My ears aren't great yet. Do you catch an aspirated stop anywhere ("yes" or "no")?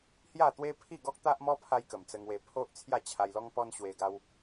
yes